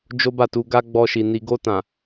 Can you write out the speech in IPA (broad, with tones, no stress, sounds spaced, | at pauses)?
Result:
d͡ʒ o˦ b a˦˨ t u˧ ɡ a˦ ɡ͡b ɔ˧ ʃ i˨ n i˨ ɡ o˧ t ã˨